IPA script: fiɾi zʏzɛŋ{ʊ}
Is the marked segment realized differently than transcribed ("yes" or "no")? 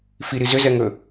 yes